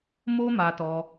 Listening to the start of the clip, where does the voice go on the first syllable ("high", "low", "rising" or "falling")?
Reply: high